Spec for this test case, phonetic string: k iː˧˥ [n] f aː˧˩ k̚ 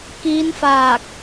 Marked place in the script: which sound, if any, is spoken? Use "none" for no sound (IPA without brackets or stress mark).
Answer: n